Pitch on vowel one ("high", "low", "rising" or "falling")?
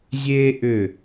high